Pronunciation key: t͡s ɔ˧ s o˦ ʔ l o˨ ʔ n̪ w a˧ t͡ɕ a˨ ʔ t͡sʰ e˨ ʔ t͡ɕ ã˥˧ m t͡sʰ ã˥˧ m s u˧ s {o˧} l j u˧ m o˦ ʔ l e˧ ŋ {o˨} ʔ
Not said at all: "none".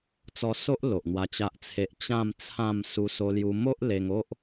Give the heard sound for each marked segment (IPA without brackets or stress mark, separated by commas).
o˧, o˦